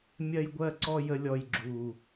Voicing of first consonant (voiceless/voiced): voiced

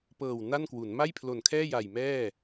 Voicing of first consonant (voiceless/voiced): voiceless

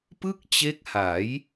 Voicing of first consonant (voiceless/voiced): voiceless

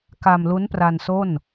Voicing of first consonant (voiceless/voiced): voiceless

